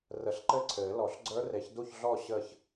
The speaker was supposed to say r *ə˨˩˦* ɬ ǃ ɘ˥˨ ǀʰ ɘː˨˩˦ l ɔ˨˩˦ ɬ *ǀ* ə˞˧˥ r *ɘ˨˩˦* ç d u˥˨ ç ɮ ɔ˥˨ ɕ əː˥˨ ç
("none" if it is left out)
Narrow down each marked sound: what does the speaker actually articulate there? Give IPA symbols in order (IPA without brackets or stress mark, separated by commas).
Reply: ə˨˩˦, ɡ͡ǀ, e˨˩˦